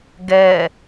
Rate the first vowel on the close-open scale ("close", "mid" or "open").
mid